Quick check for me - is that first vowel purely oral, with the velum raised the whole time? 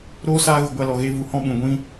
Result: yes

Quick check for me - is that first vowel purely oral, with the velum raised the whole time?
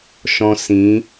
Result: no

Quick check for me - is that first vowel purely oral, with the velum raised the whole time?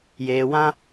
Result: yes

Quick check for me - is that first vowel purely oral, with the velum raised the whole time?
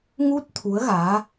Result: yes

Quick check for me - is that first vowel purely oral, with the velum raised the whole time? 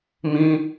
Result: no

